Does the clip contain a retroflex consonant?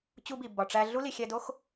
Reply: yes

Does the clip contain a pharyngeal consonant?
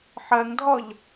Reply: yes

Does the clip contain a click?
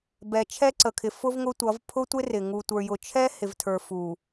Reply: yes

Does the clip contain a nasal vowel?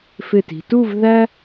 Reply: no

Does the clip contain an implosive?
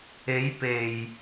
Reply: no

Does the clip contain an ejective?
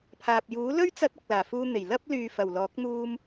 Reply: no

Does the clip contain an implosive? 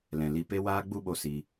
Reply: yes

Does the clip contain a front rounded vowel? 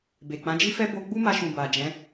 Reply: no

